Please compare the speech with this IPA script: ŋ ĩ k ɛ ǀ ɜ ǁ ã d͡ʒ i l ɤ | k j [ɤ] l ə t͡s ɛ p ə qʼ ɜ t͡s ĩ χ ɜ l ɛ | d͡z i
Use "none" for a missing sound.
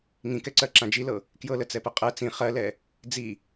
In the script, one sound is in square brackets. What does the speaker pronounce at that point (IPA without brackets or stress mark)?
ɤ